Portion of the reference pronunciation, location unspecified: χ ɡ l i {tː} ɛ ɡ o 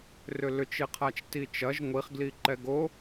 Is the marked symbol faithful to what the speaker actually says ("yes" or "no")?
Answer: no